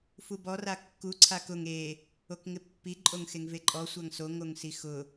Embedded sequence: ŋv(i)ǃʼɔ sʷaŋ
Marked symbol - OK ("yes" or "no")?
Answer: no